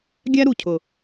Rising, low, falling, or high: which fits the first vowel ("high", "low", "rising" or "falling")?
high